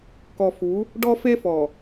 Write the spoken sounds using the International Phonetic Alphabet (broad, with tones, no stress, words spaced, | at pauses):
kɔ˨fu˨˦ | ɖɔ˦fe˦fɔ˨